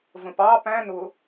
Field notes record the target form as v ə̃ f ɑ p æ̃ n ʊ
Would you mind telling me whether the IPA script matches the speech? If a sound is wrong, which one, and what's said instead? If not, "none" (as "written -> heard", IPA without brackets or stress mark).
f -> p